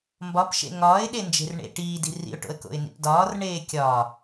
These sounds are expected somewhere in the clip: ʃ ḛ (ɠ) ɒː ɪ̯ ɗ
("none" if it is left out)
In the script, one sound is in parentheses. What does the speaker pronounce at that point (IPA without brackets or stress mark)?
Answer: ŋ